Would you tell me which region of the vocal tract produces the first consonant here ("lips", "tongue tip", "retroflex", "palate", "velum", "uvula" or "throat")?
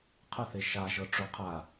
uvula